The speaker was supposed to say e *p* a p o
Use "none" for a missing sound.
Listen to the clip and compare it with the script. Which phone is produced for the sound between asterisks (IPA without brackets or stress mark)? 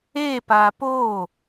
p